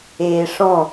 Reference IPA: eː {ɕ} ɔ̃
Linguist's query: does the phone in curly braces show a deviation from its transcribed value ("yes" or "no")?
yes